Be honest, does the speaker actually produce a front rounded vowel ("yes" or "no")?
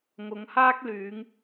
yes